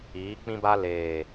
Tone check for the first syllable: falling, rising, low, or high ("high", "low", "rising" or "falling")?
rising